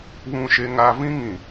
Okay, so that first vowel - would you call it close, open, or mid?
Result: close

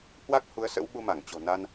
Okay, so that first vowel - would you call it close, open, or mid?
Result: open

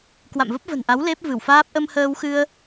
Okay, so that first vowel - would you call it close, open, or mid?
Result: open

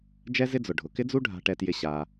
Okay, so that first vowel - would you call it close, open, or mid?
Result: mid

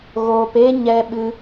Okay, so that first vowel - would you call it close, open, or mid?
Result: mid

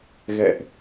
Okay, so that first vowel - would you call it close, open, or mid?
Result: mid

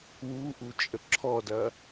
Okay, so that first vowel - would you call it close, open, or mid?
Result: close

